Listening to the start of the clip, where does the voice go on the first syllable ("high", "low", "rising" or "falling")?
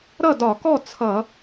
falling